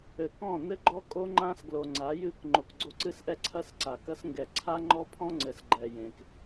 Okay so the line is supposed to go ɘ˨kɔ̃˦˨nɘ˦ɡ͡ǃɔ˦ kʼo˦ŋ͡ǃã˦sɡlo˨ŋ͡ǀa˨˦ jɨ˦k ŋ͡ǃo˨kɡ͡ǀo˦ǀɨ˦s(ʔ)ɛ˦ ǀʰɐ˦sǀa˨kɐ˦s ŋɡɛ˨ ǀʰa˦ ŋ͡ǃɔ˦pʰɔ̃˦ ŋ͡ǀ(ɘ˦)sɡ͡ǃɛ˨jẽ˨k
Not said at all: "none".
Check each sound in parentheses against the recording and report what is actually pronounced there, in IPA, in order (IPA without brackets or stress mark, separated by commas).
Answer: ʔ, ɘ˨